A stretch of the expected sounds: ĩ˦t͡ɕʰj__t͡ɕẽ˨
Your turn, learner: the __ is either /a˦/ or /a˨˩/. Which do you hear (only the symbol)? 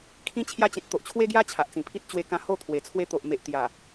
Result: a˦